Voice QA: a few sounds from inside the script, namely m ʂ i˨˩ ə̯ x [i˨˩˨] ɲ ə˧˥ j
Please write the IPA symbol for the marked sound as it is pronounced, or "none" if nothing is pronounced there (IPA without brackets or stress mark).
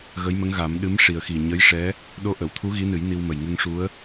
i˨˩